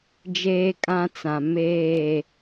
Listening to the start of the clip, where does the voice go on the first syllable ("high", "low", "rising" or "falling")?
high